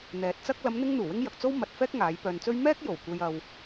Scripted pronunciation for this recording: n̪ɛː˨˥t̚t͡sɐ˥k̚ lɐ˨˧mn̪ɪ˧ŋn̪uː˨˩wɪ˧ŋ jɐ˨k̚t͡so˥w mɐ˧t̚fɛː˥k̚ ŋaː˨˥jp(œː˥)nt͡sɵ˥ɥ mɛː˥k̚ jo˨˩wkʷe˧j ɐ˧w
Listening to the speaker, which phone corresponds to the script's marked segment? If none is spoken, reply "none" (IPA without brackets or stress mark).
œː˧